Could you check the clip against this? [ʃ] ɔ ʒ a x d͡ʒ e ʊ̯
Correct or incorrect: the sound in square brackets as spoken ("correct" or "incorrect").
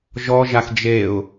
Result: incorrect